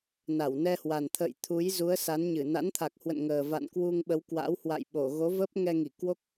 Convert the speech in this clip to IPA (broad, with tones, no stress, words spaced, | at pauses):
na˧˩wnɛ˧hwa˨˩nt̪ʰə̰ː˧˨j t̪ʰu˨˦jzu˨˦ə̯sa˨˦nɲɨ˧˩ na̰˧˥nt̪ʰa˨˩k̚hwə̰˧˨nŋəː˨˩ va̰˧˨nkwu˧ŋɓə˨˦w kwa̰˧˥whwa̰˧˨j ɓo˧˩ɣo˨˦və˦˥p̚ ŋɛ˧ŋi˧˩kwo˦˥k̚